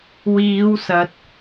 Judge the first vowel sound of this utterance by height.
high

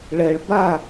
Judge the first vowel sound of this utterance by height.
mid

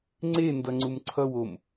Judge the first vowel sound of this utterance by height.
mid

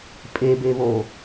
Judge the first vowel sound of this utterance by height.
mid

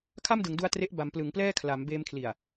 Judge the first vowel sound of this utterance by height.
low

